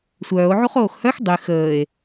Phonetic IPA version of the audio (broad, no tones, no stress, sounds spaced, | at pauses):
sʷ œː o̯ ʕ u χ oː x h œ x dˤ y x əː e̯